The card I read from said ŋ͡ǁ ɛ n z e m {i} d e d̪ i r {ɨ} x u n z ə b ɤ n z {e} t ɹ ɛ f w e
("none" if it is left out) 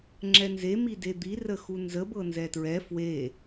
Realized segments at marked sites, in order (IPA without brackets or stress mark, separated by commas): i, ə, ɛ